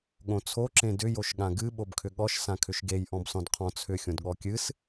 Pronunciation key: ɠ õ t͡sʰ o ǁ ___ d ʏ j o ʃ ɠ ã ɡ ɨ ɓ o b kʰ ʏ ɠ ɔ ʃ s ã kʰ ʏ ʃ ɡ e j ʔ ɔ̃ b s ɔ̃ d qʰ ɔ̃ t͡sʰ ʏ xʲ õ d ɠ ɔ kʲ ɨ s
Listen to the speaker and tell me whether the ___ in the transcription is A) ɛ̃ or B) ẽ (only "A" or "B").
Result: B